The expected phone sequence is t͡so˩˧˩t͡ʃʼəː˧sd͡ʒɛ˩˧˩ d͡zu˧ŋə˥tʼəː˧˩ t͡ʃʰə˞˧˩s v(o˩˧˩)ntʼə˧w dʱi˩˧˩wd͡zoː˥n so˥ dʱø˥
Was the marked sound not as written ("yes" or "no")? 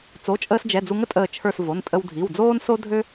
no